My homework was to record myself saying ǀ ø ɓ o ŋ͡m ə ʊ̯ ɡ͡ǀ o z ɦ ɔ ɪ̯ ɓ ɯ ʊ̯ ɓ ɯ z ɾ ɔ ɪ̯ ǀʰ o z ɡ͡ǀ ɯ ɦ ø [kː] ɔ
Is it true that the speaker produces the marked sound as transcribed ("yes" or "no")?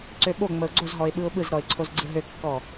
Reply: yes